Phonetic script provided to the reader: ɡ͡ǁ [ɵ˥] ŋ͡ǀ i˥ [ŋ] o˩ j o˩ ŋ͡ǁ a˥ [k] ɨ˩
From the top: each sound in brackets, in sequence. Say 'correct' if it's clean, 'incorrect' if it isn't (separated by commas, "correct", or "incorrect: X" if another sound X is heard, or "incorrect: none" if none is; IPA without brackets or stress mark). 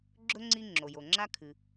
correct, incorrect: ŋ͡ǁ, incorrect: kʰ